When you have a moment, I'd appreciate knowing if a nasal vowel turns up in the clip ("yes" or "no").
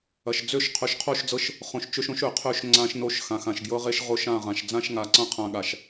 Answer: yes